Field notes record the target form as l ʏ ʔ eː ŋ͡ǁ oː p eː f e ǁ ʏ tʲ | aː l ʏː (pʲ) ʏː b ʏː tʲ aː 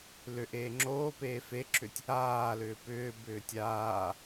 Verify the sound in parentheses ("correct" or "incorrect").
incorrect